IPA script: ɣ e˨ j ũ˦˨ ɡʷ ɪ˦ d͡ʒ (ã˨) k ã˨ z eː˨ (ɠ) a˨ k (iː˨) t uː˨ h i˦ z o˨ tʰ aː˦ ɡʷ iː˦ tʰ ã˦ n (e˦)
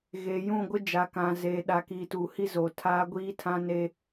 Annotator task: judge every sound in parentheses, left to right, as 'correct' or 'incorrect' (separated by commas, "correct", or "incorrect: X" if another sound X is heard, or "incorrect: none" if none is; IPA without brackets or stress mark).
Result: incorrect: a˨, incorrect: ɗ, correct, correct